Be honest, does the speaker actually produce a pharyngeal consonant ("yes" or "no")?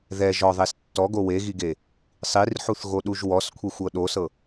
yes